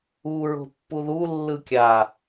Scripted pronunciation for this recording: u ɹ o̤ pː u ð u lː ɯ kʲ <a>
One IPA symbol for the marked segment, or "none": a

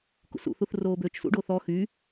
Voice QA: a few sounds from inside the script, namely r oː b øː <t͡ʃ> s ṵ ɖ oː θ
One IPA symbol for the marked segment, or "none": t͡ʃ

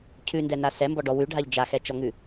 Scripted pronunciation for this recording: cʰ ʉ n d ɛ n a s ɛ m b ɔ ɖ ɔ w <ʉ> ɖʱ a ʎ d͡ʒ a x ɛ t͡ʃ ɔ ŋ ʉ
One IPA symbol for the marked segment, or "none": ʉ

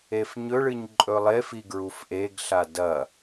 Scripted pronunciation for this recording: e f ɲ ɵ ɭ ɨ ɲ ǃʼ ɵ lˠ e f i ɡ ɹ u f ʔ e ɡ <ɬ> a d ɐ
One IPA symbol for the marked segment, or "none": ɬ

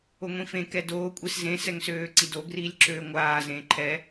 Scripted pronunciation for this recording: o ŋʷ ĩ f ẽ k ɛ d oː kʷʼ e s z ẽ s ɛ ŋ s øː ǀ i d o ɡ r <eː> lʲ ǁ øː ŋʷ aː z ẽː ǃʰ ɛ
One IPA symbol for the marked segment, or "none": iː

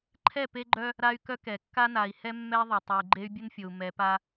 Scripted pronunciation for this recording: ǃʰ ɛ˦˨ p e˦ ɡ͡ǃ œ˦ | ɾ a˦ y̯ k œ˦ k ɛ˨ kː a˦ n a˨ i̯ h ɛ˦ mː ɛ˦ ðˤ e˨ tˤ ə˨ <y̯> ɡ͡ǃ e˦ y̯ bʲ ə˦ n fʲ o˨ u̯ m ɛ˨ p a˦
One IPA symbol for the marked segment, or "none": y̯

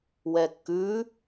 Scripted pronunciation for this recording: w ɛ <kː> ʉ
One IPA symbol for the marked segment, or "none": kː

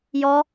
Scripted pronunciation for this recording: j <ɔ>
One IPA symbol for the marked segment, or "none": ɔ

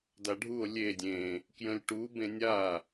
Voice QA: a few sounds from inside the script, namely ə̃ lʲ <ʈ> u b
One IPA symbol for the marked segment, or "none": ʈ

